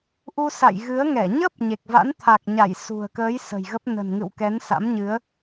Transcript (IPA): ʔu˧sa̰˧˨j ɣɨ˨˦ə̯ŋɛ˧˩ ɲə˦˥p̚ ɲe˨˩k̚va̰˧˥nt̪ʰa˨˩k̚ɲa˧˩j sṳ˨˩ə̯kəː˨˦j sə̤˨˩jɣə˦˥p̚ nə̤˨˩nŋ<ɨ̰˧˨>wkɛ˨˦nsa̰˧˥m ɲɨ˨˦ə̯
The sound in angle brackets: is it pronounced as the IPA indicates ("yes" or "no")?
yes